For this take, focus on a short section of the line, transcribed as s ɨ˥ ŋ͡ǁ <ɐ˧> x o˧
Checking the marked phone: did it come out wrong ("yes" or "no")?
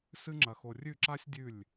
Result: no